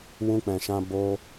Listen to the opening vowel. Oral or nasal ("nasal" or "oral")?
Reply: nasal